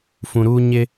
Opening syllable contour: low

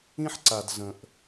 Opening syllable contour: high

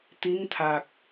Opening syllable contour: rising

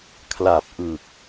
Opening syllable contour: low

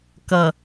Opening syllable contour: low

